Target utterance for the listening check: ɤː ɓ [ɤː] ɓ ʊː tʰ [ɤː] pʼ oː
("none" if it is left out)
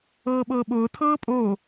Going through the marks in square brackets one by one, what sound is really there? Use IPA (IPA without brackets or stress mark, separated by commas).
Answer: ɤː, ɤː